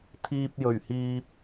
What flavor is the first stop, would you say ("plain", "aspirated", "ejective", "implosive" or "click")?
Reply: aspirated